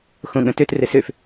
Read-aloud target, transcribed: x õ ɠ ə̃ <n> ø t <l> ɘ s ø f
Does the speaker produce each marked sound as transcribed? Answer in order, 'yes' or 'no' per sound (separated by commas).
no, no